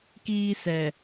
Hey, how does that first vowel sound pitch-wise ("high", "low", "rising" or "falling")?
high